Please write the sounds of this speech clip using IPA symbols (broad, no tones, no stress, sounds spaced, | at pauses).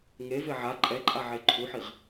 ŋ e v e ʕ a ǃʼ ɛ ǃʼ a ʕ e ǃʰ u ħ i ʁ